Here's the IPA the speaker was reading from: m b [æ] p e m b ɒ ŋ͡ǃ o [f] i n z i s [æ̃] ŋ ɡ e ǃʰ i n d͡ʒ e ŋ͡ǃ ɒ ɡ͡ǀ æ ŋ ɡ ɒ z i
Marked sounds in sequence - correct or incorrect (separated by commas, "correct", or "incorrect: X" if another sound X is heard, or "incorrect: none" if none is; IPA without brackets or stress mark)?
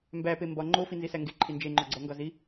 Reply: correct, correct, incorrect: æ